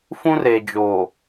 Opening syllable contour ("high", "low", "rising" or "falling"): high